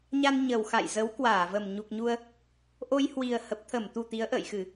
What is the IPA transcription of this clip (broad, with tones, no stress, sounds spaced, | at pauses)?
ɲ a˧ n ɲ ə˨˩ w x a̰˧˨ j z ə˨˦ w k w aː˧˩ v ə˨˩ m ɲ u˨˩ k̚ ɲ u˧ ə̯ | ʔ o˧ j h w i˨˩ ə̯ h ə˨˩ p̚ t̪ʰ ə˧˩ m t̪ u˨˩ t̪ i˨˦ ə̯ ʔ ə̰ː˧˨ j x ɨ˧˩˨